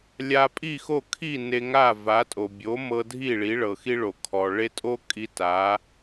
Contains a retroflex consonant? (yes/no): yes